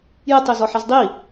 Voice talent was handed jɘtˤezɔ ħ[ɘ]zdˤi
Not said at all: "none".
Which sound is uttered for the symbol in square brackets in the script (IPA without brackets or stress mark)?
ɛ